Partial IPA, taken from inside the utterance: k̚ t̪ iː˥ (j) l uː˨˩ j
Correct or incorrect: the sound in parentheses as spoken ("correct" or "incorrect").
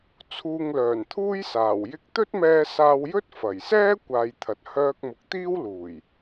incorrect